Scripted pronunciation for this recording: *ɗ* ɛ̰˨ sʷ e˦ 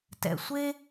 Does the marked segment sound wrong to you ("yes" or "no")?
yes